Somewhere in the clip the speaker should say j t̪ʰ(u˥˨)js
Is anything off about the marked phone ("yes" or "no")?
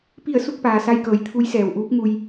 yes